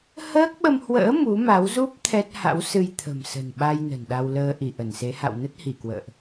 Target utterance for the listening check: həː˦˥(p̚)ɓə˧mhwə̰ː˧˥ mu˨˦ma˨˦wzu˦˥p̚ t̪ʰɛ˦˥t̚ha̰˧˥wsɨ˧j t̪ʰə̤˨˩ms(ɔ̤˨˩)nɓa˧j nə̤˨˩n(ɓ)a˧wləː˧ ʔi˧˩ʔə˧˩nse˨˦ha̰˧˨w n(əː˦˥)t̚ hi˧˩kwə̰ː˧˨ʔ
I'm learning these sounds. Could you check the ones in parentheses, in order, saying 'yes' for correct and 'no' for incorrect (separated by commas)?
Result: no, no, no, no